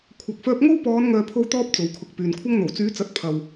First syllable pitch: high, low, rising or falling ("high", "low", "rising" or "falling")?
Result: low